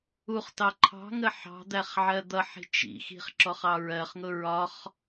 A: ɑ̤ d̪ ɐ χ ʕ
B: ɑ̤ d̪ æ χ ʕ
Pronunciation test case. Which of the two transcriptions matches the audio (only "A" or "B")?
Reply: B